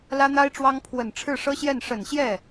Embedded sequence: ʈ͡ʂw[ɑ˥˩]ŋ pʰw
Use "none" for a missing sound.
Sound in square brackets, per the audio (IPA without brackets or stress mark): ɑ˥